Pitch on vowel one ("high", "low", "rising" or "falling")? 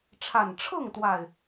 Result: low